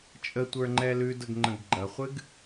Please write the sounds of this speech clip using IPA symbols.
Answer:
t͡ʃʼ ə tʷ ə˞ ŋ͡ǃ ɛ l ʉ d ə ɡ ŋ͡ǃ ə̃ ɡ ɡ͡ǃ ɐ χʷ ɨ ɡ

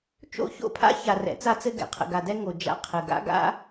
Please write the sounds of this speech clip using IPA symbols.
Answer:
t͡ʃ o̰˦ ç o̰˦ pʰ a̰˦ ç a˨ r ɛ̰˨˦ t͡s a˦ t͡s ɘ˦ ɡ ɛ̰˨ qʰ ə̰˨ ɡ a˨ d ɛ˦ ŋ o˨ d͡ʒ a̰˦ qʰ ɘ˨ ɡ a̰˦ ɡ a̰˦

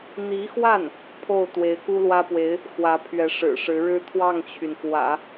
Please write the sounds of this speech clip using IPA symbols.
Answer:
n̪ i˧˥ x w a˥˩ n | pʰ o˥˩ ʊ̯ t̪ w e˧˥ ɪ̯ k u˥ l w ä˥ p w e˧˥ ɪ̯ | x w ä˧˥ pʰ ɥ ɛ˧˥ ʂ ɻ̩˨˩ ʂ ɻ̩˧˥ ɻ ɻ̩˥ t̪ʰ w ɑ˥˩ ŋ t͡ɕʰ y˩ n k w ä̰˨˩˦

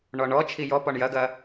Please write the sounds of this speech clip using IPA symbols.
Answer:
ɳ ɔ ɳ ɔ t͡ʃʰ i j ɔ p ɔ ɳ j ɐ ɡ ɐ

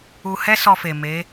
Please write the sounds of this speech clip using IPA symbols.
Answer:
u˧ h ɛ˦ s ɔ˧ f e˨ m e˨˦

